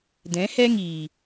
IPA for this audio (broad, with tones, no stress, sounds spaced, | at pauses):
d ɛ̃˨˦ h ɛ˦ ŋ iː˨